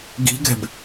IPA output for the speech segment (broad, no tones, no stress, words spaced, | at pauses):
ɡi̤ɡɛ̤b